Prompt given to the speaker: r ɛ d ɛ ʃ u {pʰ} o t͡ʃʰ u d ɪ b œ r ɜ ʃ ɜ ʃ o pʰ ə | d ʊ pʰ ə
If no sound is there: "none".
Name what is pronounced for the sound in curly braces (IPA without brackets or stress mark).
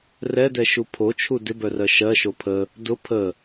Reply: pʰ